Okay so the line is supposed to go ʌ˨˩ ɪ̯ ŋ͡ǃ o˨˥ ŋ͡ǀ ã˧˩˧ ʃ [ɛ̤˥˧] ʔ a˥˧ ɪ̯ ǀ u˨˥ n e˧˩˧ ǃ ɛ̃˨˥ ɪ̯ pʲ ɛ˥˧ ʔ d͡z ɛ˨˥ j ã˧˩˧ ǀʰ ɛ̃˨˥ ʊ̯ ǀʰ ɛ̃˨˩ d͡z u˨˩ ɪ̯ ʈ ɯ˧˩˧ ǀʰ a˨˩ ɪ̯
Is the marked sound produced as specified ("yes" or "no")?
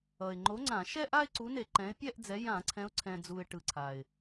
no